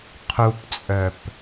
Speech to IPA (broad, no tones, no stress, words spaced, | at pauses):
qʰupt͡sʼœp